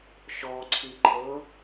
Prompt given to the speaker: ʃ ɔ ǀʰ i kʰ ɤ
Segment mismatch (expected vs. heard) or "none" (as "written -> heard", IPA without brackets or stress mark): kʰ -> ǃʰ